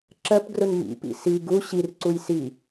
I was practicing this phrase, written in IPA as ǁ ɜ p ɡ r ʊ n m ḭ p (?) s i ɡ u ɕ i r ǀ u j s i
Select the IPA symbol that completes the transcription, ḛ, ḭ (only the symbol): ḭ